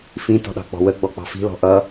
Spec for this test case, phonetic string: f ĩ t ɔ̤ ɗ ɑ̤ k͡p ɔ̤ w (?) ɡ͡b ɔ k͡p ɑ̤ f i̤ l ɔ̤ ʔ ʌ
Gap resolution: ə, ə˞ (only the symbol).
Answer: ə